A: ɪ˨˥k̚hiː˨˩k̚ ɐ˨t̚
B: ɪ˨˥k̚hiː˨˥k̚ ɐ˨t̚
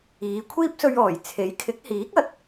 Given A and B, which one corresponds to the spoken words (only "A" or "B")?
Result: B